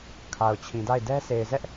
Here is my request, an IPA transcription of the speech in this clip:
kʰa˨ʊ̯t͡ɕʰĩ˨da˦˨ɪ̯dɛ˦ sʰe˨ɪ̯zɛ˦ʔ

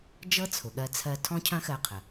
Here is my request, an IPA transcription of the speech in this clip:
d͡ʒɤ˥t͡sʰʊ˩ɠɜ˧t͡sʰɜ˧ tʰɔ̃˥cʰɐ̃˥xɜ˧qʰə˩

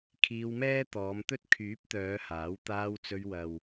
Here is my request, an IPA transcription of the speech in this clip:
kʰiː˧wmɛː˥ t̪ɔː˨˧mt̪ɵ˥t̚ kʰyː˨˥p̚t̪œː˨˧ haː˨˥w t̪aː˧wt͡sɵ˧ɥ wɐ˨w

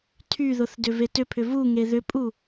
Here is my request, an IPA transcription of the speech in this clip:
tʰyðʊθ dʏvetʏpʰʏ vuŋe ðʏpʼu

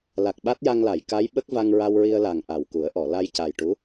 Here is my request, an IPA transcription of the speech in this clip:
la˨˩k̚ɓa˦˥t̚ja˧ŋla˨˩˨j ka˧˥jɓə˦˥k̚va˧ŋ ɹa˧wɹi˧ə̯la˨˩ŋ ʔa˨˩wku˨˩˦ə̯ʔɔ˨˩˨ la˧jca˨˩jʈu˧˥

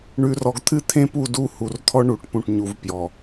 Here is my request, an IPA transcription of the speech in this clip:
ɳʉ˨rɔ˨ɡt̪ʰɨ˦ t̪ʰẽ˦pu˦˨du˦˨ hu˨rt̪ʰɔ˦ ɳu˨ʈ pũ˨ʈ ɲu˨vpjɔ˨

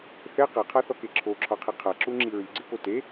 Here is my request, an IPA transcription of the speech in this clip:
θɛ qɛqʰaθɔke ǁʰoǁʰɔqʰi qʰaǁuŋ͡ǁi ɹiɡ͡ǀeko te

